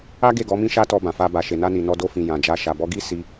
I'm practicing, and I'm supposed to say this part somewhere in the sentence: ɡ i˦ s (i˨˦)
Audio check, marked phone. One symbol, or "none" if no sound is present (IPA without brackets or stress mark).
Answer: i˧